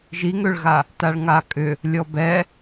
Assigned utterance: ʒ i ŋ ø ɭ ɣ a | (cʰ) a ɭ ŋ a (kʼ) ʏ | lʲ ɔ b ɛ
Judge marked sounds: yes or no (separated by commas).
no, yes